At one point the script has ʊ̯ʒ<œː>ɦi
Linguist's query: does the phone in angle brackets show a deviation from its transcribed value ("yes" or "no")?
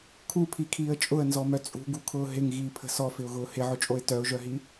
yes